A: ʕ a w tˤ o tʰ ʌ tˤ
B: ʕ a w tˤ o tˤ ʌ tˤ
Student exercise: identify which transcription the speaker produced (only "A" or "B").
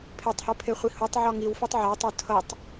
A